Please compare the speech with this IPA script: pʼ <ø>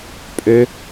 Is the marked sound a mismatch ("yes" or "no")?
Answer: no